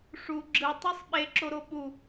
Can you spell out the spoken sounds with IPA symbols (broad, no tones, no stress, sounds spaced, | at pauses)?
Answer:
ʂ u ɡ͡ǁ ɯ tˤ ɯ sˤ ɓ e ǁ o ɾ o ɓ u